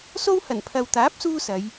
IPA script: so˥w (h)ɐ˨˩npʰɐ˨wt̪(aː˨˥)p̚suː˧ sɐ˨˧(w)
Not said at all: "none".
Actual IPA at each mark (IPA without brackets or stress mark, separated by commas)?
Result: h, aː˨˥, j